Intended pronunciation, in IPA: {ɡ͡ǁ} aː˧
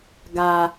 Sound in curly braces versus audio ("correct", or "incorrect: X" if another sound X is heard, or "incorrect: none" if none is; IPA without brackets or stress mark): incorrect: ɡ